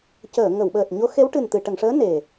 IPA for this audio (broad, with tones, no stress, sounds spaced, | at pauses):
c əː˨˩˨ ŋ ə˨˩˨ w ɓ əː˨˩ t̚ ɲ o˧˥ x e˧˥ w ʈ ɨ˨˩ n t̪ ɨ˨˩˨ ʈ ə˨˩˨ ŋ ʂ əː˧˥ n e˨˩